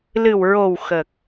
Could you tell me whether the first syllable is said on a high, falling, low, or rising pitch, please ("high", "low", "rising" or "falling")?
low